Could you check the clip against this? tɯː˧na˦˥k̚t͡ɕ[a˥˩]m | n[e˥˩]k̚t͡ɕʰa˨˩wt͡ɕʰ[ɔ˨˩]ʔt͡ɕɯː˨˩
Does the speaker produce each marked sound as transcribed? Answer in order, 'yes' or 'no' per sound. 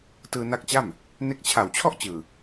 yes, no, no

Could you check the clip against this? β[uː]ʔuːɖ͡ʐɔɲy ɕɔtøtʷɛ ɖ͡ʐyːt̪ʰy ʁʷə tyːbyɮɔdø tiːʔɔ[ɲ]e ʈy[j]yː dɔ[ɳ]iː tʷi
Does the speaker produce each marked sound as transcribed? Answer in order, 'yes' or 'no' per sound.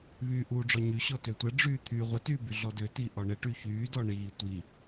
no, no, no, yes

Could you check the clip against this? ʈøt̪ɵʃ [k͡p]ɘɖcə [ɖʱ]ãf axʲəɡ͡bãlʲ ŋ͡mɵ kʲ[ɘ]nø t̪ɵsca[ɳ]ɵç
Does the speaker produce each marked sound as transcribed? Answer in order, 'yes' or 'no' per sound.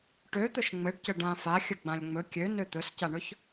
no, no, no, yes

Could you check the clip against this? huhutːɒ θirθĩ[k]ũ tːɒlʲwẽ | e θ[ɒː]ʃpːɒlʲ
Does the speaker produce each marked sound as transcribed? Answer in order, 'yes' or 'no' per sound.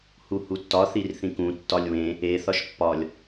yes, no

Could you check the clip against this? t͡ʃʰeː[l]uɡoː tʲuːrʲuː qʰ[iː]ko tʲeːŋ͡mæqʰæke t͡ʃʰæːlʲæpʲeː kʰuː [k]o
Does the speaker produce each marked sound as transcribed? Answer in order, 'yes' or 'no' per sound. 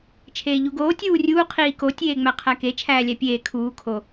no, yes, no

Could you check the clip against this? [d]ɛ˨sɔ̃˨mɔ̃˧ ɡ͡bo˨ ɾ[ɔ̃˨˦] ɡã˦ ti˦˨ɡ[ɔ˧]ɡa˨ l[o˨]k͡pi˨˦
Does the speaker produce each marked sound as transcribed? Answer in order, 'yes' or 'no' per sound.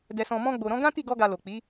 yes, yes, yes, yes

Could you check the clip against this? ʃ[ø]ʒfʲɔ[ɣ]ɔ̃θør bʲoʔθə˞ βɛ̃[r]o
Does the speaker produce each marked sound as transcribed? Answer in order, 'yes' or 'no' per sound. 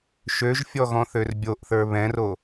yes, yes, yes

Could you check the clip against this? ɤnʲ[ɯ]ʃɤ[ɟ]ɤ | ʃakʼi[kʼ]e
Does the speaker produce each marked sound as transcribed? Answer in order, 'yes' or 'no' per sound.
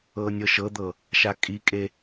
no, no, yes

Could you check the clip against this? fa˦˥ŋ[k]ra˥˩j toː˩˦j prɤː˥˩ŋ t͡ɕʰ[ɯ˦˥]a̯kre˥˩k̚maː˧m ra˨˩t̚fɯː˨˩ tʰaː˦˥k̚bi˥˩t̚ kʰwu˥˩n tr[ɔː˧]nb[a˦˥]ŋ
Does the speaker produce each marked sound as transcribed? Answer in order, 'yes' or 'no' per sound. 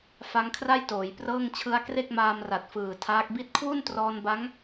no, yes, yes, yes

